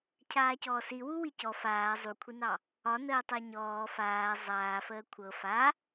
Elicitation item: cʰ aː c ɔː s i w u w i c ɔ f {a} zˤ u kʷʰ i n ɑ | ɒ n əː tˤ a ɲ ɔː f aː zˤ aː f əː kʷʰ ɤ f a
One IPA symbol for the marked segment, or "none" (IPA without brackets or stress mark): aː